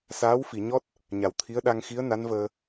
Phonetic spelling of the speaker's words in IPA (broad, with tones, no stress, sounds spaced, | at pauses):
s aː˧˥ w f i˨˩˨ ɲ ɔ˦˥ t̚ | ɲ a˨˩ w t̪ʰ i˧˥ ə̯ ɗ a˧ ŋ x i˧˥ ə̯ n a˧˥ n v əː˧